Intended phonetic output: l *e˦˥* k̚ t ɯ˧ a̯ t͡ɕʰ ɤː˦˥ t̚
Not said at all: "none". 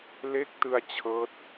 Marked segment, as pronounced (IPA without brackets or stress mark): e˦˥